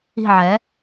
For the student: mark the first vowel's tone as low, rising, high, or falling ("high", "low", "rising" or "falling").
falling